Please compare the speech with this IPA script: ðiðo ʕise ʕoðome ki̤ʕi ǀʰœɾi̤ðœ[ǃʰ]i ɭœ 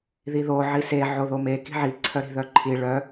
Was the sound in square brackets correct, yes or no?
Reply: yes